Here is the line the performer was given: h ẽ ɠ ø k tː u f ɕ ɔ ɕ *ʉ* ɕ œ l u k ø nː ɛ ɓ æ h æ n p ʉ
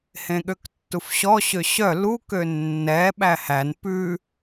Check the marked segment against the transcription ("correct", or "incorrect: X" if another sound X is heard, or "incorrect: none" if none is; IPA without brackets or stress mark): incorrect: ø